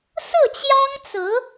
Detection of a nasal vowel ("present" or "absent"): absent